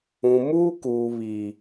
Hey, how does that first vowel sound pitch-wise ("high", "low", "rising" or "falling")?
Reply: low